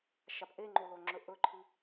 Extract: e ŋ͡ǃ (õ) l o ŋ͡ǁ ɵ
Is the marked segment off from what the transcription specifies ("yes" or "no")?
yes